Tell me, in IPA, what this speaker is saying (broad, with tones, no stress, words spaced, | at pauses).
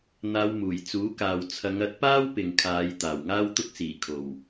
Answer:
n̪aː˧wmuː˨˩j t͡suː˨˥kaː˨w t͡sʰɐ˨˧ŋɐ˨˥t̚paː˥w pɪ˨ŋkʰaː˨˧j t̪aː˨˩wŋaː˥wt̪ʊ˥k̚ siː˨˩kʰo˨˩w